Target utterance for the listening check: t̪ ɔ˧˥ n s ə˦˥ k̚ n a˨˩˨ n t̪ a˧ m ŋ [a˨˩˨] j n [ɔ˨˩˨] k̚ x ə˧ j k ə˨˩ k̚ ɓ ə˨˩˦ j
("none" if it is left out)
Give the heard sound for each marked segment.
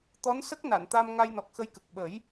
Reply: a˧, ɔ˨˩

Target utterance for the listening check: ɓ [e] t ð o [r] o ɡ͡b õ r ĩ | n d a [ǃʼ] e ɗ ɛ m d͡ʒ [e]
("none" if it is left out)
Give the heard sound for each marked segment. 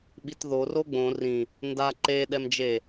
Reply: i, r, ǃ, e

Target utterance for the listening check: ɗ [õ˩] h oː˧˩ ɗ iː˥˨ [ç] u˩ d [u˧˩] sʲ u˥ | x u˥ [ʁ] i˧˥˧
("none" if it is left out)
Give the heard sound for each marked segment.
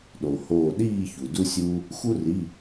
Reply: o˩, ç, u˥, r

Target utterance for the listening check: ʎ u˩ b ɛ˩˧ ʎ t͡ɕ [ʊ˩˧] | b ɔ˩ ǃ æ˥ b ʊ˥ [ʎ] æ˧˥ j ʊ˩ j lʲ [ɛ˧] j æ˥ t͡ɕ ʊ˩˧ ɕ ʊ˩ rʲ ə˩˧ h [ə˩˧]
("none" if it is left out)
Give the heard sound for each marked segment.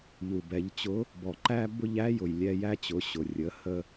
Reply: ʊ˧˥, ʎ, ɛ˧, ə˧

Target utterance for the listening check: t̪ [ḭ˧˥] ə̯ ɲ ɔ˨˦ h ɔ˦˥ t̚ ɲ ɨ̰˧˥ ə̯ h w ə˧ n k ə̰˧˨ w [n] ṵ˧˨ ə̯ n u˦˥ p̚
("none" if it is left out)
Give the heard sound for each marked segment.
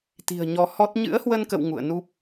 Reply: i̤˨˩, ŋ

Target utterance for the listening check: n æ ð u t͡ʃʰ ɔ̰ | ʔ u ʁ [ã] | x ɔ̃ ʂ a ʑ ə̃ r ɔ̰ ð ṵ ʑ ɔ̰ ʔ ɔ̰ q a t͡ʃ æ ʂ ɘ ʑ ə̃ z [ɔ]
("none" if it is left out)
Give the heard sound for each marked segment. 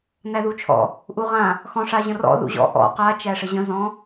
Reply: ã, ɔ̃

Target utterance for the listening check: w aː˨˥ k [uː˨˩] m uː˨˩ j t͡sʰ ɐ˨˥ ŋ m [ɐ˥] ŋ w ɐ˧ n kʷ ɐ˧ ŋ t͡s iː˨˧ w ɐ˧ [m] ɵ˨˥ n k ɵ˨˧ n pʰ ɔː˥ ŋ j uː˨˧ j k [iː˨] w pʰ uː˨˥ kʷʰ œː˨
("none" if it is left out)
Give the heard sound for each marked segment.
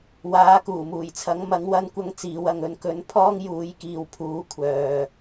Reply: uː˨˩, ɐ˨˥, ŋ, iː˨

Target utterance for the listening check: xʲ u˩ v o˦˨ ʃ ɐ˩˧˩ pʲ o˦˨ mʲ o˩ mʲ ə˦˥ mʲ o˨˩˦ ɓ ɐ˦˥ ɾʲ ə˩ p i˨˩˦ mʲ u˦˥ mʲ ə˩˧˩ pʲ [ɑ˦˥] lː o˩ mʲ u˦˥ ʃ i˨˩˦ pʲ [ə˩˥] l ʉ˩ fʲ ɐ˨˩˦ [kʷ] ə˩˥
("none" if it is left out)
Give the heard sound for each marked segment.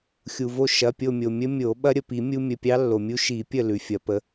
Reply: ɑ˦˥, ə˦˨, p

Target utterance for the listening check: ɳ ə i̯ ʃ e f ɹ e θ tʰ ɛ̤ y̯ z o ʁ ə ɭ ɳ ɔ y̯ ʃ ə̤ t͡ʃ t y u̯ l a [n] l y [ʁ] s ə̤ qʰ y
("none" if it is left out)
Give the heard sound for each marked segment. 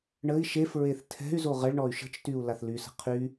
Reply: θ, none

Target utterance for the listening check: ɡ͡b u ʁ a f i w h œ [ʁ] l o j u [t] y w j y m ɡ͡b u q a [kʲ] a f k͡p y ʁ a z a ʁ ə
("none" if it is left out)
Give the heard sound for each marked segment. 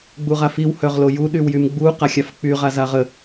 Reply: ʁ, ɗ, xʲ

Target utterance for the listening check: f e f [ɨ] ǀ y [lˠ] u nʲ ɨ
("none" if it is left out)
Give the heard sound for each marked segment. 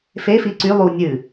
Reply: i, lˠ

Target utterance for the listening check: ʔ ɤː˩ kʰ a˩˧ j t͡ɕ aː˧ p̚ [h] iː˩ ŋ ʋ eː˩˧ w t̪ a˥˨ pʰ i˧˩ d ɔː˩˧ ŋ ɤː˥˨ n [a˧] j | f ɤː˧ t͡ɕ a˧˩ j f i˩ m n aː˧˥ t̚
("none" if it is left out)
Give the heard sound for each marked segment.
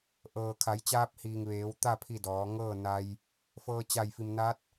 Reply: h, a˧

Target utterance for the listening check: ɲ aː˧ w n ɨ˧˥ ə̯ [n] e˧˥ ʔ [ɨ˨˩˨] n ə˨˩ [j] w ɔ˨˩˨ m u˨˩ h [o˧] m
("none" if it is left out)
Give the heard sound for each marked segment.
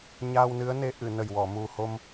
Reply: n, ɨ˨˩˨, j, o˧

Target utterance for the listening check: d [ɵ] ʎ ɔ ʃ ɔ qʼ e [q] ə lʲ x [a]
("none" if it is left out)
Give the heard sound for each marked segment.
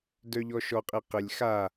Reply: œ, q, a

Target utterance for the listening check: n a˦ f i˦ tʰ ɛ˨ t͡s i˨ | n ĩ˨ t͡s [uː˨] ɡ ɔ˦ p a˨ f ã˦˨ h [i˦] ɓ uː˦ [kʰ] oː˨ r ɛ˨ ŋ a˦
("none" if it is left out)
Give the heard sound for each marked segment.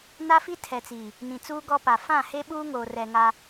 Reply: uː˦, e˦, ŋ

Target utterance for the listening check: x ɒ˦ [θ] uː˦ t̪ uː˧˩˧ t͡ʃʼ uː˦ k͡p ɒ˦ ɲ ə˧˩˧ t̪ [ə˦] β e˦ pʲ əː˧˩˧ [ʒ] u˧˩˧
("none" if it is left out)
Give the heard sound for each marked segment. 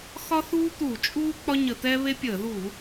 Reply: θ, ɛ˦, ð

